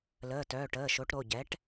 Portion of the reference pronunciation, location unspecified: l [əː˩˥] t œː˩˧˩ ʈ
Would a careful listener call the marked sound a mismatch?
yes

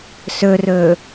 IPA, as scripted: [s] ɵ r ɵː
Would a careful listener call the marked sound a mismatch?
no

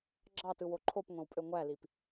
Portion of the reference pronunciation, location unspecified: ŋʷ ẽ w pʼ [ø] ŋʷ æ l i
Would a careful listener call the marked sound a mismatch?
no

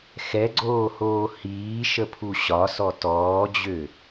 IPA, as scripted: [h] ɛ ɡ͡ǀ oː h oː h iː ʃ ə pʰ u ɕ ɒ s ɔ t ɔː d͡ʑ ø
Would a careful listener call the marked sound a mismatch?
yes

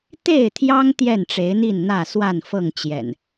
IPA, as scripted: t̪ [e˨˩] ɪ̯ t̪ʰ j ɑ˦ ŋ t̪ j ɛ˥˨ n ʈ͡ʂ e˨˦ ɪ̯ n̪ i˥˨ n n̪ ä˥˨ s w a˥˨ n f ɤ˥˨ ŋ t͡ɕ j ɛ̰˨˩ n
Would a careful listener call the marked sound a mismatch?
yes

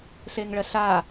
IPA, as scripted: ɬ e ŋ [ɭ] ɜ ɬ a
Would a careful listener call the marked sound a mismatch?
no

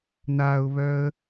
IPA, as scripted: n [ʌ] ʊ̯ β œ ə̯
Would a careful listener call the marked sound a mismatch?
yes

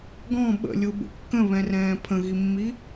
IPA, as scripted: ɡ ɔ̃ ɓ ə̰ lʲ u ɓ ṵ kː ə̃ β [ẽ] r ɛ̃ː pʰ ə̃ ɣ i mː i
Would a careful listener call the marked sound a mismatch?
yes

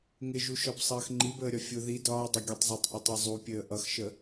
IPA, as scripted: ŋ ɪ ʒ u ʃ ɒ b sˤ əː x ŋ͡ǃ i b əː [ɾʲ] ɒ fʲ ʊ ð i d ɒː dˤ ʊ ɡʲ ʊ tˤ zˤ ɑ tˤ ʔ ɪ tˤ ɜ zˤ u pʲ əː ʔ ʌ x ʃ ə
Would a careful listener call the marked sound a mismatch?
no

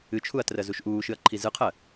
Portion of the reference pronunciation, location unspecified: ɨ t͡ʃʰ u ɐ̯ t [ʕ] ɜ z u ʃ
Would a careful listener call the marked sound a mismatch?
yes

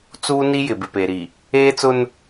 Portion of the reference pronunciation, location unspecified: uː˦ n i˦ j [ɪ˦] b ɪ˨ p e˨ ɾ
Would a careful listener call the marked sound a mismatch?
yes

